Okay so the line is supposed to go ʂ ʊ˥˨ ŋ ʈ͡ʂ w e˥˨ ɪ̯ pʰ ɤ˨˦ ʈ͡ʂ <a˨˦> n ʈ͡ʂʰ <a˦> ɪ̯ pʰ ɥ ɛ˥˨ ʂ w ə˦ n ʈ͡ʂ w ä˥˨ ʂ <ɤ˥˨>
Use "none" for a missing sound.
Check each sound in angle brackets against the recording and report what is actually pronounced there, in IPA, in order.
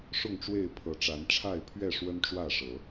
a˨˦, a˥˨, ɤ˨˦

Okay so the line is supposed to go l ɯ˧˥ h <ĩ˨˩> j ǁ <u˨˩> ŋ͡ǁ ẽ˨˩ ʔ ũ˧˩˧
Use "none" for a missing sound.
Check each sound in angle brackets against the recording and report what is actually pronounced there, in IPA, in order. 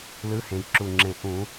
ẽ˨˩, u˨˩

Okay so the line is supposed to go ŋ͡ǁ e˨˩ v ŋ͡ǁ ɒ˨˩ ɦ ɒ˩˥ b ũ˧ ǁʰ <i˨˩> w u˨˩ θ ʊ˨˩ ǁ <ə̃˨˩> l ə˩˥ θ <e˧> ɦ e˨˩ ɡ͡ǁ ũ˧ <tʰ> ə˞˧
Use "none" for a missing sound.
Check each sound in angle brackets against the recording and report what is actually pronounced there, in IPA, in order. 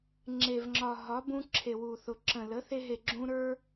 e˨˩, ə̃˨˩, e˧, ɾ

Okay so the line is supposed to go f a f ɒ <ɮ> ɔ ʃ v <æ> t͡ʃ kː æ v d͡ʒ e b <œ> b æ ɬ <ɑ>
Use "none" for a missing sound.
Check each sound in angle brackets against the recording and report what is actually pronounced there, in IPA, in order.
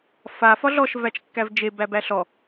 ɮ, æ, æ, ɔ

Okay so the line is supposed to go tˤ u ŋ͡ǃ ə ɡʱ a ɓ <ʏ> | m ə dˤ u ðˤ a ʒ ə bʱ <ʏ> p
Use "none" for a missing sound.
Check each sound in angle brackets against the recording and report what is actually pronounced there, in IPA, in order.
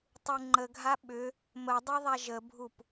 ʏ, u

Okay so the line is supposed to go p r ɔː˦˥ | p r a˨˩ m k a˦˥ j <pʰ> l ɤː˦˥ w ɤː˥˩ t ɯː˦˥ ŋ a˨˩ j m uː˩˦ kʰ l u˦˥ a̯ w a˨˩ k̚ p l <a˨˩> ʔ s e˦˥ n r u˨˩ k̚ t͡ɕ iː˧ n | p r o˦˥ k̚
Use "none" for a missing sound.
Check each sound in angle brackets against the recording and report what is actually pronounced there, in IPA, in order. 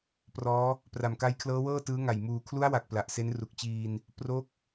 kʰ, a˨˩

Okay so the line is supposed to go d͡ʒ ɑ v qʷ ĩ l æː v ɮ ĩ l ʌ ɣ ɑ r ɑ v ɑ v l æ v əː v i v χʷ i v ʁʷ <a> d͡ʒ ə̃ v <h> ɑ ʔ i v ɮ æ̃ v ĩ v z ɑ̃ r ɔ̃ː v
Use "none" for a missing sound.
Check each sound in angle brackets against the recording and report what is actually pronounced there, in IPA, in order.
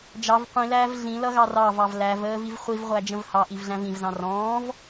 æ, h

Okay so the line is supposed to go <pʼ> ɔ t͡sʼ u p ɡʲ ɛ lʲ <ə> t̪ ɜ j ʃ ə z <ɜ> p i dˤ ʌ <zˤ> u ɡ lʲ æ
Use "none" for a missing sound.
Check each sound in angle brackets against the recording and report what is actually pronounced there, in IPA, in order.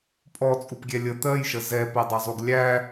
pʼ, ə, ɛ, zˤ

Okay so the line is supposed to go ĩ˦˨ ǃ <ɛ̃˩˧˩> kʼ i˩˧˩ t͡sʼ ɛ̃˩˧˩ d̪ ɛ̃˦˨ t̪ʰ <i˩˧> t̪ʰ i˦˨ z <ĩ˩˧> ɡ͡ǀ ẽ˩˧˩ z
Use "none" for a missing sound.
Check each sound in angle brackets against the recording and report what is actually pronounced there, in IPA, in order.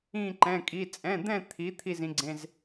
ɛ̃˩˧˩, i˩˧, ĩ˩˧

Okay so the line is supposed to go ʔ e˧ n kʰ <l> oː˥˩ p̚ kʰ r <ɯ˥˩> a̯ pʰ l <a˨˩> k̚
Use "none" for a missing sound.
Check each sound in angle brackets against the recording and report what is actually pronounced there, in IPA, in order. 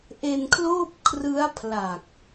l, ɯ˦˥, a˨˩

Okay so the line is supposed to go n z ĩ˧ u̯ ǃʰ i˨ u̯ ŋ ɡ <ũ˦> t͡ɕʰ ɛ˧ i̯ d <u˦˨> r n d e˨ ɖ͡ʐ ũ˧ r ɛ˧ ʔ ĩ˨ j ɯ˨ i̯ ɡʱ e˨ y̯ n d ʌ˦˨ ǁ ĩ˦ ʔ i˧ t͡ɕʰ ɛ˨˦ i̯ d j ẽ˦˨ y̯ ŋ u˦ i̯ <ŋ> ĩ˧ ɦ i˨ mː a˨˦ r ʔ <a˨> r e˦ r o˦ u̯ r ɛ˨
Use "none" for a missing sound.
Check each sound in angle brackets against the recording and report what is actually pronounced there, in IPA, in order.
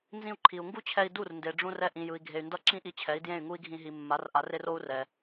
u˦, u˦˨, ɡʱ, a˨˦

